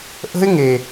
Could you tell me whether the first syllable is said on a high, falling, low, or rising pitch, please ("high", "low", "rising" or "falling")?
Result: high